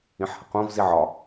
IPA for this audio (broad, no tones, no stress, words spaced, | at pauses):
ĩħhəqõv ziʕɒ